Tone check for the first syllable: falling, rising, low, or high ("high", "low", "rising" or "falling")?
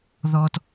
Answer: low